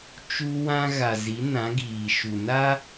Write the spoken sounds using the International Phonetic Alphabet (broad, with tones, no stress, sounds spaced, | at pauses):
t͡ʃ u˦ w ã˦ ɣ a˨ z i˨˦ n ã˨˦ ɡ iː˨ ʃ u˨ n a˦